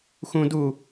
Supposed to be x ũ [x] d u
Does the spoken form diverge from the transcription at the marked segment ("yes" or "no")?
yes